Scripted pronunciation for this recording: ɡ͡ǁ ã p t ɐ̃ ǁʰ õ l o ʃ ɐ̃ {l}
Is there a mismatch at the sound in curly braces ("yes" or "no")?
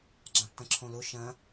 yes